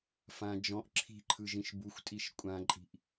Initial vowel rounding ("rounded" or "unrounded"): unrounded